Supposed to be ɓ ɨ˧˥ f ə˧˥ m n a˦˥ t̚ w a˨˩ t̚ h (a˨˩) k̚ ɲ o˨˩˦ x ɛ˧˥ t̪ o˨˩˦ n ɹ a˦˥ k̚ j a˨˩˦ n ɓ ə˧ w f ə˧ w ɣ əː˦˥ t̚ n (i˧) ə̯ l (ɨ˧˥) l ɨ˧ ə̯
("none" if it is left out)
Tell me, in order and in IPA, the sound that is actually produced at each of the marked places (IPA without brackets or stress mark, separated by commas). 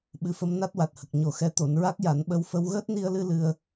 ə˨˩, i˧, ɨ˧